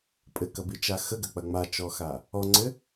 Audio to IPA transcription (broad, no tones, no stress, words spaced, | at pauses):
pʼɘkɐbit͡ʃa xəɡɐk͡pɐ ŋ͡mat͡ʃɔxa | ɔŋ͡ǀɘ